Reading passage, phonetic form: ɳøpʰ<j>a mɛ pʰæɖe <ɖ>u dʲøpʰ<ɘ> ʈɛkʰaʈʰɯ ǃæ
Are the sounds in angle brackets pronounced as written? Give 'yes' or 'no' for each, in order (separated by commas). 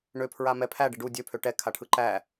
no, yes, no